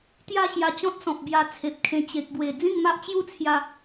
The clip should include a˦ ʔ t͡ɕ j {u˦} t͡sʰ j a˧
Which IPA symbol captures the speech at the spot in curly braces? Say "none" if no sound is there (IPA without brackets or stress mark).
u˥˧